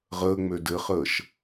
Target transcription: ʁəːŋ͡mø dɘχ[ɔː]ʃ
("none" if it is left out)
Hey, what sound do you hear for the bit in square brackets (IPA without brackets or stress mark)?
əː